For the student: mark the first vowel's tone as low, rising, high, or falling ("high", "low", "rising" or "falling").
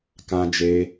high